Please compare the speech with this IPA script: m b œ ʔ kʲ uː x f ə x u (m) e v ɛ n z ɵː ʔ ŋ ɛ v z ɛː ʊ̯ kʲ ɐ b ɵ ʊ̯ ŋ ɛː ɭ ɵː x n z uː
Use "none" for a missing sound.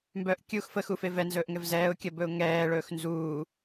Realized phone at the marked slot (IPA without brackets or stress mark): f